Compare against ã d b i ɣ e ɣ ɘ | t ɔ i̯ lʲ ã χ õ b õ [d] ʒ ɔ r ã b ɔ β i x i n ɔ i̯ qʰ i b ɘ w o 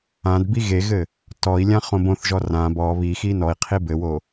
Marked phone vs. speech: incorrect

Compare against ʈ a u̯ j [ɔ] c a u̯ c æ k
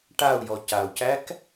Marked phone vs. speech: correct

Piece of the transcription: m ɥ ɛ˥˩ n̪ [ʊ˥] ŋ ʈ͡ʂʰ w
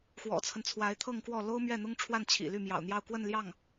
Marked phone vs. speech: correct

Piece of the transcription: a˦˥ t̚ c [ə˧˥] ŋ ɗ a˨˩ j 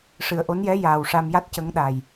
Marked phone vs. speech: correct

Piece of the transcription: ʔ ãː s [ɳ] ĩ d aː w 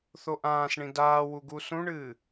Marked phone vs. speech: correct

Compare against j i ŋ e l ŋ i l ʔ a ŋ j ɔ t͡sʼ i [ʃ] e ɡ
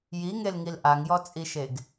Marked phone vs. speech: correct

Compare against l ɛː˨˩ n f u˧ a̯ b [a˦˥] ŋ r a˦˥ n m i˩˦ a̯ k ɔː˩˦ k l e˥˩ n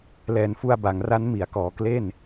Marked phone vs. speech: incorrect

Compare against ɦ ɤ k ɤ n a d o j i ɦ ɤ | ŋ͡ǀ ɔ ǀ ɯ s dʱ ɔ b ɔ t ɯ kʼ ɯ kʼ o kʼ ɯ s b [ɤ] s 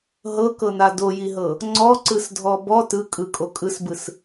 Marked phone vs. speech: incorrect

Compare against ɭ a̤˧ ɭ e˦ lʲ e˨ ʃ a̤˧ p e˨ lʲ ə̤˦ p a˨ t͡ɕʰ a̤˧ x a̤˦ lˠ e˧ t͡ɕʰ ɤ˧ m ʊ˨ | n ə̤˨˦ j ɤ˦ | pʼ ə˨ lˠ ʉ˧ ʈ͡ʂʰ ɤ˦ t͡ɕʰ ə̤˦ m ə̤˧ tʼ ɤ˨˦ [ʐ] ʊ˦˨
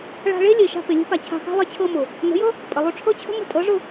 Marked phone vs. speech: correct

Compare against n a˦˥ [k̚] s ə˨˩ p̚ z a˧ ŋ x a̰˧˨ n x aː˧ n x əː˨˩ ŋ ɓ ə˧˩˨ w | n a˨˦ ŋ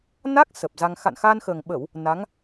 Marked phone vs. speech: correct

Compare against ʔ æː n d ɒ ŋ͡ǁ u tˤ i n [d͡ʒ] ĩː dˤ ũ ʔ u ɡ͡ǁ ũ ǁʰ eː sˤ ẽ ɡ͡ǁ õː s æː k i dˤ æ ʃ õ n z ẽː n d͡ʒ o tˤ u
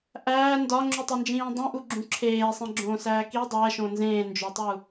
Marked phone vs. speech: correct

